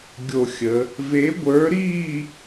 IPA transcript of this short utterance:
ɡʲ o˥˧ xʲ ə˧˥ | v e˧˥ ɡʷ ə˞˧˥ ɾ iː˥˧

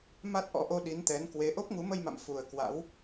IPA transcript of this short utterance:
m a˦˥ t̚ ʔ ɔ̰˧˥ ʔ o˧ ɗ i˨˦ n t̪ ɛ˨˦ n k w e˨˦ ʔ o˦˥ p̚ ŋ u˨˦ m ə˧ j m a̰˧˨ m f u˨˩ ə̯ k w a̰˧˥ w

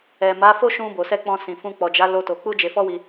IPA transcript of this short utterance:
ɛ˨ m a˨˦ f o˦ ʃ ũ˧ b o˨ s ɛ˧ k͡p ɔ̃˧ s ĩ˨ f ũ˧ k͡p ɔ˨ d͡ʒ a˨˦ l o˦ t o˧ k͡p u˦ d͡ʒ e˧ f ɔ˦ w i˧

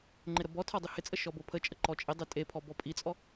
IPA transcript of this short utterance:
ŋ͡ǃ ɪ ɾ ə b ɔ tʰ ɔ dˤ i h ɪ t͡sʼ ə ʃ ɔ b o pʰ ə t͡ʃʼ ə ǃ ɔ t͡ʃʼ ɪ dˤ e tʼ e pʰ ɔ b ɔ pʼ i t͡sʼ ɔ

